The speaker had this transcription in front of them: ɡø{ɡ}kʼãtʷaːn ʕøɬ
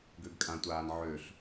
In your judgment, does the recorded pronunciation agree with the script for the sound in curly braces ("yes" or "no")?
yes